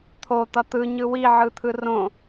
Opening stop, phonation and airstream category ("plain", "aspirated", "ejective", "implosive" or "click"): aspirated